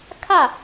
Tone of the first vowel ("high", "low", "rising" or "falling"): falling